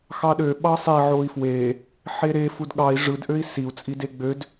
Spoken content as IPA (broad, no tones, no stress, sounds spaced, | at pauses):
x ɑ ɗ ø ɓ ɑ sˤ i ʕ o i̯ f w e | ħ e ɾ e f u d ɠ ɑ i̯ ʐ ɯ d ʔ ø i̯ s i u̯ t͡sʼ i d e ɡ͡b ø d